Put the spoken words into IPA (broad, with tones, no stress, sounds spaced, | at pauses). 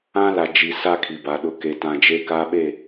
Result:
ã˦ l a˨ d͡ʒ i˨ s a˦ kʰ i˨ b a˨ ɗ ʊ˦ k e˦ t ã˦ d͡ʒ e˦ k a˦ ɓ e˦˨